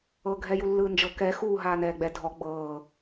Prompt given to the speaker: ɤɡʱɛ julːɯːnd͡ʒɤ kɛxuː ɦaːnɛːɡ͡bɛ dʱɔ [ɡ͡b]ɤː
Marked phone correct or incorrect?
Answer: correct